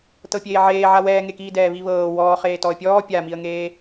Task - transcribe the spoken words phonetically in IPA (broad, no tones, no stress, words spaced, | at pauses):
tɤpʲeːʕeː ʕawɛːŋekiː dɛːβiβɤː wɔːχeː tɔə̯pʲɔː pʲamiə̯ŋeː